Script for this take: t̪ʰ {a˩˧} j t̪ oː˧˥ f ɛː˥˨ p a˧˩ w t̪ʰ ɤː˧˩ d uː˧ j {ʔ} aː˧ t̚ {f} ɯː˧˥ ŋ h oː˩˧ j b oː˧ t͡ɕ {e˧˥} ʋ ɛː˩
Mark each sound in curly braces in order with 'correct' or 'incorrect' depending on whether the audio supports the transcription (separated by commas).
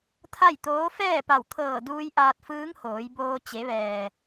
incorrect, correct, correct, incorrect